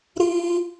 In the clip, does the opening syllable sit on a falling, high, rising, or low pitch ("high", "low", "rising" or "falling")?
high